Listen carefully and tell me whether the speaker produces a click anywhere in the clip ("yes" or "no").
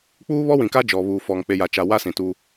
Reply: no